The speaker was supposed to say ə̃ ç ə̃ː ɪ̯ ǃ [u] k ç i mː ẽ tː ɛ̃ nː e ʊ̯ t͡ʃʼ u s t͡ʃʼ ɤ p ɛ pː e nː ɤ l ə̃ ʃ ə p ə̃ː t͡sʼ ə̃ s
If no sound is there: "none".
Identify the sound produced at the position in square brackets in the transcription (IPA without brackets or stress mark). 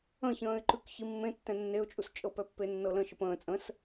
ʉ